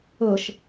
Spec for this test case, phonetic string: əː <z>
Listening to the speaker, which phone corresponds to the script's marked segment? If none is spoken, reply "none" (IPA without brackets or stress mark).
ʃ